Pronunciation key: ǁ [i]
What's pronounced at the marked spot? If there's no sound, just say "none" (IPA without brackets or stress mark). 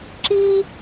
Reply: i